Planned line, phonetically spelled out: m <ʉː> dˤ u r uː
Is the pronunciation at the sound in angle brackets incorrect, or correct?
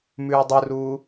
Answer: correct